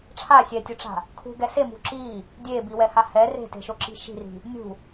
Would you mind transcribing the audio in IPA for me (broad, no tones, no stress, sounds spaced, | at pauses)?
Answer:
ʈ͡ʂʰ a sʲ ɛ tʲ u ʈ͡ʂ a̤ | kʰ ṳ ɡ ɛ s e m ṳ ǁ i | dʲ e b i w ɛ h a h ɛ r e̤ t e̤ ʃ o ǁ i̤ ʃ i̤ r i̤ | nʲ ṳ